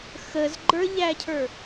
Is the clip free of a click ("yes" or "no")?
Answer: no